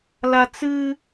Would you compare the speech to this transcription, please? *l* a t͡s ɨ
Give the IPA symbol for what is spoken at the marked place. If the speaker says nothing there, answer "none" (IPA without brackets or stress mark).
l